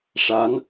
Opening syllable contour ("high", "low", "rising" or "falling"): rising